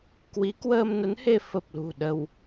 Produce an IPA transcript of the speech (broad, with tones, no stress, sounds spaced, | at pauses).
k w i˨˦ k w əː˧ m n ə˨˦ n h e˧ f ə˨˩ p̚ l ṳ˨˩ ɗ ə˧ w